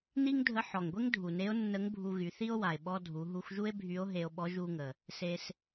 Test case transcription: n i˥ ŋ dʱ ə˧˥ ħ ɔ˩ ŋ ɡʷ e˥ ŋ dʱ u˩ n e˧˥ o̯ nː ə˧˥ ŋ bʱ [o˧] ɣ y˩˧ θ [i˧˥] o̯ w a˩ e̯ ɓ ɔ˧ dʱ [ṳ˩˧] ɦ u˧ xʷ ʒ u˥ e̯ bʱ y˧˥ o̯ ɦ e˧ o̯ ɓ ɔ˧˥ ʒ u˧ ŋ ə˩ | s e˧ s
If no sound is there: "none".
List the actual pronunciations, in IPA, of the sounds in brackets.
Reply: u˧, i˥, u˩˧

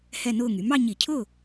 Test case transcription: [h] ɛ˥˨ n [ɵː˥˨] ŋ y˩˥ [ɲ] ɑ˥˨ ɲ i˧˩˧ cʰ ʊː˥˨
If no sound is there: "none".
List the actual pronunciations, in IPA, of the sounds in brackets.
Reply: h, ʊː˥˨, m

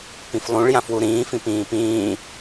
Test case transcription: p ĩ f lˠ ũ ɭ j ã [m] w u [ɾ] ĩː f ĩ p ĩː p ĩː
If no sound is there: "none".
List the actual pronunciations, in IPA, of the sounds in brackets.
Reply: f, ɾ

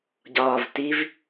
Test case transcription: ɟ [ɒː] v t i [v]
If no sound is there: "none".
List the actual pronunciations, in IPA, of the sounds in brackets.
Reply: ɒː, v

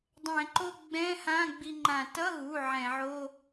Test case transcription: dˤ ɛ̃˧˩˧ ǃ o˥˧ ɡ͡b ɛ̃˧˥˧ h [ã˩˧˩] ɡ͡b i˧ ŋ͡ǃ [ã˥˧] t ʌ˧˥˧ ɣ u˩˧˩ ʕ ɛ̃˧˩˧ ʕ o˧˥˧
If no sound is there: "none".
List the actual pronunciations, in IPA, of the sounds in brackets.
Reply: ã˧˥˧, ã˧˩˧

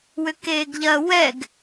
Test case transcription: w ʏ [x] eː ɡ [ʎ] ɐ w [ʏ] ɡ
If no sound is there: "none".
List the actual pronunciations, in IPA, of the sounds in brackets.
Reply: k, ʎ, ɛ

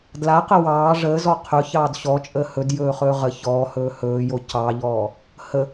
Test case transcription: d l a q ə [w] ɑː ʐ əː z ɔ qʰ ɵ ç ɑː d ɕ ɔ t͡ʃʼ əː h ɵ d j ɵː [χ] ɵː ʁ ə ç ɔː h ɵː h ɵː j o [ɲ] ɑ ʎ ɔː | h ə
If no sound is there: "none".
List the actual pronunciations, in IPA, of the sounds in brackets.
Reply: w, χ, c

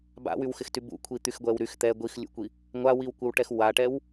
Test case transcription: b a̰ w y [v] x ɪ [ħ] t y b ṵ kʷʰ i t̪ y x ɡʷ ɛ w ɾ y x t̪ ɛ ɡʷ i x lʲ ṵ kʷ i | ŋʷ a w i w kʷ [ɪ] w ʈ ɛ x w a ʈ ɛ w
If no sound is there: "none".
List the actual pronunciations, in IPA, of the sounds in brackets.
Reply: w, x, ɪ

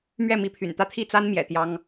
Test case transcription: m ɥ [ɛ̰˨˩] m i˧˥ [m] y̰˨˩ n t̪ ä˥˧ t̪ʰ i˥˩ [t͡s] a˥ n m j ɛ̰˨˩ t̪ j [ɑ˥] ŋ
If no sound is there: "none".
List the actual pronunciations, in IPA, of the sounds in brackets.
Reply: ɛ˥˩, pʰ, t͡s, ɑ˥

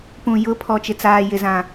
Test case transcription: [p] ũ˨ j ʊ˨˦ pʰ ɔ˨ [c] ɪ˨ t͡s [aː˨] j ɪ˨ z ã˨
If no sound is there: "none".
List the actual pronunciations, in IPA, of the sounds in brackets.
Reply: p, t͡ʃ, aː˨

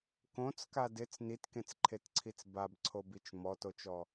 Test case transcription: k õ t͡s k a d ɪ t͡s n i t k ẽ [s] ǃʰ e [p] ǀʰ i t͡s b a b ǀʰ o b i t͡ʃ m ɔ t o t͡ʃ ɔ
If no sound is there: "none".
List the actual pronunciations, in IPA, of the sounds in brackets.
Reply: t͡s, t

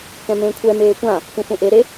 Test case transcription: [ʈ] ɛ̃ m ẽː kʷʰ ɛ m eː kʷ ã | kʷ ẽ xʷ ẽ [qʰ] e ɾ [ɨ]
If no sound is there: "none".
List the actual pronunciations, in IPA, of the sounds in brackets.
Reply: k, ʔ, e

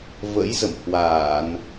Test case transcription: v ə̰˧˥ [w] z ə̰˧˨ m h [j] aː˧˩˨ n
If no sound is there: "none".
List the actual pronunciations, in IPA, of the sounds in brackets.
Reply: j, w

